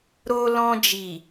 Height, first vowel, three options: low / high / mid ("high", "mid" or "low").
mid